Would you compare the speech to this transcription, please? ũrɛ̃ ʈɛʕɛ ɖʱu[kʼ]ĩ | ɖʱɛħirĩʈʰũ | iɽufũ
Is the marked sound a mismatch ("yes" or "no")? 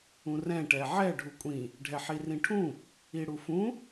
yes